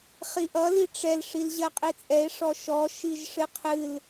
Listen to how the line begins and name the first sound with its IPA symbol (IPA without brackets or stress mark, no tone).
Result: χ